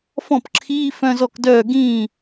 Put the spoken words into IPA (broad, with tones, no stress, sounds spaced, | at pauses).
f ɔ̃˥˩ p ǁʰ iː˧˥˧ f œ̃˧˥˧ z ɔ˥˩ k d œː˥˩ ɡ ĩː˥˩